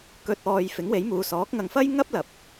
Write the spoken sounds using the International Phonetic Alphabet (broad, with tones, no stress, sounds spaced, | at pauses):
k ɵ˨ t̚ ɔː˨ j f ɪ˨˥ ŋ w e˨˥ j m uː˨˧ s ɔː˨˥ k̚ ŋ ɐ˨ ŋ f ɐ˥ j ŋ ɐ˥ p̚ l ɐ˨ p̚